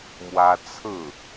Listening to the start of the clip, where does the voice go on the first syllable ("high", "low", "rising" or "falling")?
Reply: high